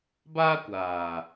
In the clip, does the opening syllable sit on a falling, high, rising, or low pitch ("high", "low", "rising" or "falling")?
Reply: high